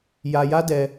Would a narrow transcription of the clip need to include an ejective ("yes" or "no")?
no